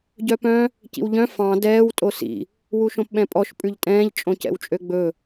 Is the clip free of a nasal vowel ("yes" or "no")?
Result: no